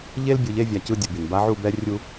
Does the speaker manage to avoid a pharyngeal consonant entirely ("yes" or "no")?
no